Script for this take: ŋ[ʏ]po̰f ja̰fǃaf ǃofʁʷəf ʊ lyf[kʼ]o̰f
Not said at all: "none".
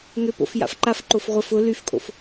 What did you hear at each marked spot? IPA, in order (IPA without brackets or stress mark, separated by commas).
ʏ, kʼ